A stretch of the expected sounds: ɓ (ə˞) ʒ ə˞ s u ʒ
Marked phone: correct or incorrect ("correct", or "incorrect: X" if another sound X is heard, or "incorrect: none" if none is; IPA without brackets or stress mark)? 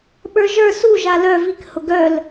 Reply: correct